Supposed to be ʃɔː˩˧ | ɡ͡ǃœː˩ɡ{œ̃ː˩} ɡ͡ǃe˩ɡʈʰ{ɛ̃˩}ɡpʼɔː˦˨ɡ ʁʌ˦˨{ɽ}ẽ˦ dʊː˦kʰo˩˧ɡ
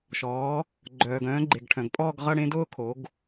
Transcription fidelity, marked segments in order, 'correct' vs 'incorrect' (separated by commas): incorrect, incorrect, correct